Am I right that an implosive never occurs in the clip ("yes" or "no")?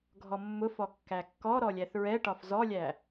yes